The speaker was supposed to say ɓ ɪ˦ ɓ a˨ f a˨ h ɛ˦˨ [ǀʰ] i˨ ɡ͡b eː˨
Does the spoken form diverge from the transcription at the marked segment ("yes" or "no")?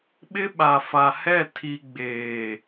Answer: yes